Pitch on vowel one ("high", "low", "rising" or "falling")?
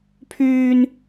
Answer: high